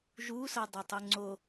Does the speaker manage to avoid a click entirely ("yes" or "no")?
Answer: no